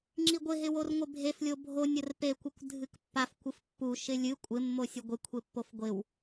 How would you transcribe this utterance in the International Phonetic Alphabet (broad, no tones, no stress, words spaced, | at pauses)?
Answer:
ŋ͡ǁiɡʷɪɦɪ worŋʷɪbʱeflʲo bʱonʲ ərpekʷɪkʷ dʱɨkpːaf kʷɨfpːu ʃɪlʲɨ kʷʼɪmːosʲu ɡʷɪkʷʰe pːofɡʷɪw